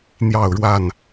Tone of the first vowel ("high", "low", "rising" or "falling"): falling